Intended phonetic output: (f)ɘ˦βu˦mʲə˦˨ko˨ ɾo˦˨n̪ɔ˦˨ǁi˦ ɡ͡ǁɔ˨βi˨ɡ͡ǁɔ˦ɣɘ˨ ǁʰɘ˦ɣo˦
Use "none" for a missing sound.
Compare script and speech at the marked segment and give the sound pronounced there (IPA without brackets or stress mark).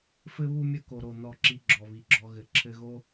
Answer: f